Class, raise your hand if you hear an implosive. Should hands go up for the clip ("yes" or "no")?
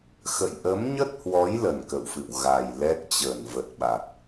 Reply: yes